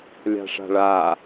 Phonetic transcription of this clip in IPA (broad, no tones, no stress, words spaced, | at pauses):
lʲa̤ʂa̤ɭa